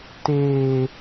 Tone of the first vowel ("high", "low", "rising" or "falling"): high